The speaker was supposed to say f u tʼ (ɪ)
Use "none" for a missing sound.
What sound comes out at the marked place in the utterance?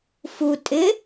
ɪ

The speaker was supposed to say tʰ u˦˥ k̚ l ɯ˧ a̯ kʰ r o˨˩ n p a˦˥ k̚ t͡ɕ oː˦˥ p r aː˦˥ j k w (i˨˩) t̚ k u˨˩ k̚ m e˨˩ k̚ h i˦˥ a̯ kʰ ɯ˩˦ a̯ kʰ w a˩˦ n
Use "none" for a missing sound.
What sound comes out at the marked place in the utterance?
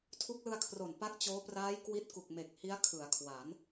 i˦˥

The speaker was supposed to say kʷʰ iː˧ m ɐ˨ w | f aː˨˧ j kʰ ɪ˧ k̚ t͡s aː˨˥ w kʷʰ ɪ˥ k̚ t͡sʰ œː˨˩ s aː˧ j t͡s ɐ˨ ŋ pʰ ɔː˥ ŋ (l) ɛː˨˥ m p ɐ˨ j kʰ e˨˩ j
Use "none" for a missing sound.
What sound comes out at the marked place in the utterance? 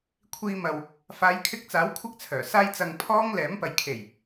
l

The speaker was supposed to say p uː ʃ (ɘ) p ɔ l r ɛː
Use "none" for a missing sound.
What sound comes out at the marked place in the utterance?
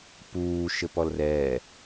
ɘ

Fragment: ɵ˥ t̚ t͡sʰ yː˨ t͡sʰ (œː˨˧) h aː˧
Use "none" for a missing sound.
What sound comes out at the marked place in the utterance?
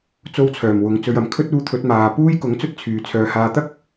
œː˨˧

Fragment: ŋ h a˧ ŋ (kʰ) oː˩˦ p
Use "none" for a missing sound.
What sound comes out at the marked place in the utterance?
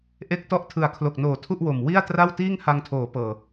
tʰ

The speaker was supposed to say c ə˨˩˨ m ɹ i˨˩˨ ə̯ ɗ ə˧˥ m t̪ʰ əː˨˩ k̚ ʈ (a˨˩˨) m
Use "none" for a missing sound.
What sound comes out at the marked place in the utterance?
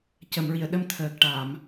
a˨˩˨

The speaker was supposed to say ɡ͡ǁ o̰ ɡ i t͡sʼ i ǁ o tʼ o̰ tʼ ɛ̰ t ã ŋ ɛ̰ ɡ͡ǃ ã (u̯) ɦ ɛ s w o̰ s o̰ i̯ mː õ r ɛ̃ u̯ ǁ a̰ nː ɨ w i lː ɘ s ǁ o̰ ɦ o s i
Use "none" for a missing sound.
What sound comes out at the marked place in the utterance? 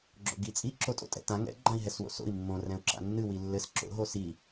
i̯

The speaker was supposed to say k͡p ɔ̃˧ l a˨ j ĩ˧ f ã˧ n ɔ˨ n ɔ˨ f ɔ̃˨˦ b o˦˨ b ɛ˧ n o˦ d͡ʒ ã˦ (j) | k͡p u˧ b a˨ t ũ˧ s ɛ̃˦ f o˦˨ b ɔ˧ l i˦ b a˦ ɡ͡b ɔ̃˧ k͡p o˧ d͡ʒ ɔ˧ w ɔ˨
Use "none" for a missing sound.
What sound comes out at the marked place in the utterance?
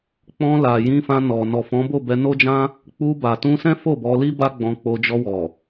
none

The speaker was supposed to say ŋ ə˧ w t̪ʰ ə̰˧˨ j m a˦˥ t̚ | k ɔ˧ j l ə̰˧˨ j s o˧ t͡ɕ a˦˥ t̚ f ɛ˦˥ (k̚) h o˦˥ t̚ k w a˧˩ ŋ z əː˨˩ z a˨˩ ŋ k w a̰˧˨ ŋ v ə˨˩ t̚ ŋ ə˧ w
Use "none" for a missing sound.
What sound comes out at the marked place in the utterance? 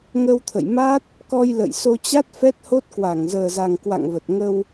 t̚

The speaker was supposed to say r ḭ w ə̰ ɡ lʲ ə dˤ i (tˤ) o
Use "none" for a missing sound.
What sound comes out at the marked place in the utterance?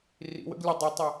tˤ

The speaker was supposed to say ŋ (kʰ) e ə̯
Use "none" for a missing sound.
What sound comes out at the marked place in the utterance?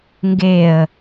ɡ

